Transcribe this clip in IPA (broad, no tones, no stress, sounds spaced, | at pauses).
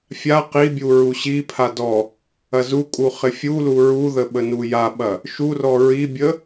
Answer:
fʲ a q i bʲ u ɹ u ɕ i pʰ a d ɔ | ɐ z u kʼ u χ ɪ fʲ u l u ɹ u ð ə ɓ ə n u j a ɓ ɐ | ʃ u r ɔ ɹ i bʲ ə